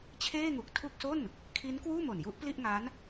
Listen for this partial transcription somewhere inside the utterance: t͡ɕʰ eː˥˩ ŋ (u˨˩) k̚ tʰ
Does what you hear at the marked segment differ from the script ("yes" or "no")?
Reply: no